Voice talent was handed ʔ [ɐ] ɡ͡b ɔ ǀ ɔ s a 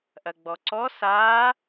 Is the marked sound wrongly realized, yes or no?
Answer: no